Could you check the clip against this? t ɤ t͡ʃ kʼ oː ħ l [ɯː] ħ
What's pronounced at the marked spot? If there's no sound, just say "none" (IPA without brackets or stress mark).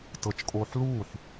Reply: uː